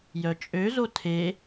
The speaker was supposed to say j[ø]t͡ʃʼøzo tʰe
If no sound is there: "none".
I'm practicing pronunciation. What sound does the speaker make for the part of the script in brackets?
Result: œ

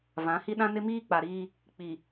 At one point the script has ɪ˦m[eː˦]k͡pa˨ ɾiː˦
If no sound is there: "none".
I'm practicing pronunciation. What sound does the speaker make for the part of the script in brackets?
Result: iː˦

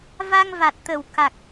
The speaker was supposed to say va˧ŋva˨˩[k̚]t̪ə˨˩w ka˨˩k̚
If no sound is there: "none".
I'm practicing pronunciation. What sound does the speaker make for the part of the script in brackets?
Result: t̚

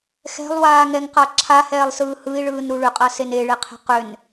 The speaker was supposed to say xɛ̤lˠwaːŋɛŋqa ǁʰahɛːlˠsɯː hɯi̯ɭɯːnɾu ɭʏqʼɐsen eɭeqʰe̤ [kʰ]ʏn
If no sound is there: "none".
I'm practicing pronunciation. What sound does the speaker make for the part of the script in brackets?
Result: q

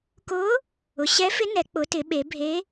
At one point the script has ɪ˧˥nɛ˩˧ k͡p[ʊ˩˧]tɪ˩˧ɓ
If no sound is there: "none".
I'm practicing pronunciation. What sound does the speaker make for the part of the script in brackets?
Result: ʊ˩˧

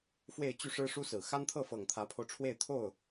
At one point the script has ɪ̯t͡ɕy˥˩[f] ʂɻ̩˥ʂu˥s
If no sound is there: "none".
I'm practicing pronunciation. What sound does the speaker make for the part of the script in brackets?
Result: none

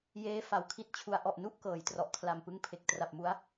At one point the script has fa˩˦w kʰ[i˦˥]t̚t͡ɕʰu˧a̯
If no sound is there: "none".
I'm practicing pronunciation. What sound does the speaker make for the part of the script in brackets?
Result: i˦˥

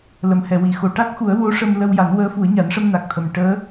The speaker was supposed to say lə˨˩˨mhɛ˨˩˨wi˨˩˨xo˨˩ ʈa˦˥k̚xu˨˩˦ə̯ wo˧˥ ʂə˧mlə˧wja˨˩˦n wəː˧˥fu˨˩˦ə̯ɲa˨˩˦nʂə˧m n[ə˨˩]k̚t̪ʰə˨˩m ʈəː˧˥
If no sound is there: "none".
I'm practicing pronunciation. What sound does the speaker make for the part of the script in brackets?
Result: a˨˩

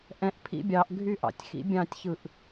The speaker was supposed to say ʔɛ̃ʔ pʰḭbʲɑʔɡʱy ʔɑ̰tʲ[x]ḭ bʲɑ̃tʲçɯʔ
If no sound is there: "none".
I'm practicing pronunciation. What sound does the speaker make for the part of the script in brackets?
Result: x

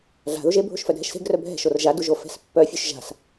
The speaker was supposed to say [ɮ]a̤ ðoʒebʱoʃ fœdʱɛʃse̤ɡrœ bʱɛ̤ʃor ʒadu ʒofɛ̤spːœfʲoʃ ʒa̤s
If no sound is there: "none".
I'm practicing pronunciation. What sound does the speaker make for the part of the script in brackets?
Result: ɮ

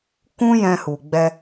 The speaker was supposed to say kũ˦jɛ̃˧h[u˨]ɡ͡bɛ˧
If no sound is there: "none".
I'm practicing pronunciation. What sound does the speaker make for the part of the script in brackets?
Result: u˨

